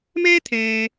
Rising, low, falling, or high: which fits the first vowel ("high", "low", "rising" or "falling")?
high